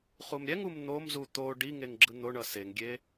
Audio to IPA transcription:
χ u m ɾʲ ɛ ŋ u m n̪ o m z u t̪ o ɖ i ŋ e ŋ ɡ͡ǁ ɯ n̪ o ɳ ʌ s e ŋ ɡʲ e

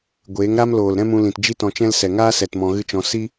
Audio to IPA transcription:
ɡʷ eː˨˦ ŋ ɾ a˦ m l oː˨ l ɾ ɛ̃˦ m ũ˧ l ĩ˨ t d͡ʒ i˦ t ɔ̃˧ t͡ʃ ɛ̃˦ l s ɛ˨ ŋ aː˦ s ɛ˨ t m ɔ̃˧ ɣ ɨ˦ t͡ʃ ɔ̃˧ s i˦

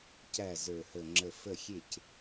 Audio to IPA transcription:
c æ˥˩ z ə˞˧˩ h ə˧˩ ŋ͡ǁ ə˧˩ f ə˥˩ xʲ e˥˩ c

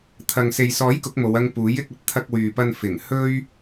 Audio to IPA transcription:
t̪ʰ ɐ˨ ŋ s e˨ j s ɔː˨˥ j k ʊ˨˥ k̚ m o˨˧ w ɐ˧ ŋ p uː˨˥ j ɪ˨˥ k̚ ɐ˧ t̚ t̪ʰ ɐ˧ k̚ w yː˨ p ɐ˧ n f ɪ˨˩ ŋ h ɵ˥ ɥ

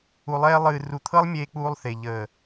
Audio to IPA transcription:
u˨ lˠ ɛː˧ lˠ ɨː˨ r u˨ t̪ʰ ɤ˦ lˠ mʲ eː˧ k͡p uː˧ lˠ θ e˨ ʎ əː˨

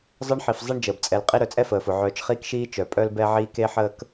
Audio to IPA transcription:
zˤ əː˦ ɳ ħ i˩ f zˤ e˦ ɳ d͡ʒ əː˩ b t͡sʼ ɛ˨ l qʼ i˦ ɾ œ˨ t͡sʼ ɛ˥ f əː˩ f ʊ˩ ʕ œː˨ t͡ʃ χ iː˦ k ʃ iː˦ t͡ʃ œ˩ pʼ œ˥ l b ɛ˦ ʕ iː˦ k e˥ ħ əː˥ k

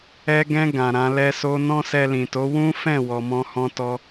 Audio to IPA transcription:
ɛ˧ ɡ ɛ̃˧ ɡ ã˨ ɾ ã˧ l ɛ˧ s o˧ n ɔ̃˦ s ɛ˧ l ĩ˨ t o˨˦ w ũ˦ f ɛ̃˦˨ w ɔ˨ m ɔ̃˧ h ɔ̃˧ t ɔ˧

